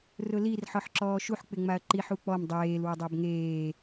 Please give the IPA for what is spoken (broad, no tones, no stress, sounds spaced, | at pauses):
r ʊ l i r ħ ɔ ħ ǁ ɔː ʃ u ħ k͡p ɪ ŋ͡m a ɐ̯ ǃ i ħ u k͡p ɔ m dˤ eː l w ʊ dˤ a b ŋ eː